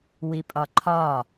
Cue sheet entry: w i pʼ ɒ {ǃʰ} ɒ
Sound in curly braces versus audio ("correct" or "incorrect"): correct